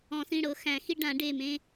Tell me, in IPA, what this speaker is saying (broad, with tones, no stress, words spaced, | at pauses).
ɔ̃˨˩˦sĩ˩˧˩ɽɤ˨˦ xæ̃˨˩˦xi˦ ɖã˨˩˦ ɖe˩˧˩mẽ˦